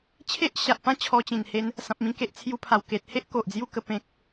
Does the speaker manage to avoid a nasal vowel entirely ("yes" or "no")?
no